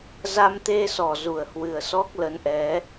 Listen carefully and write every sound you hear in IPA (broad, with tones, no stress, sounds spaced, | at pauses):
z a˧ m t̪ e˧ s ɔ˧˩ z u˧˩ ə̯ h w ɨ˨˩ ə̯ s ɔ˦˥ k̚ l ə˨˦ n ʔ ɛ˨˦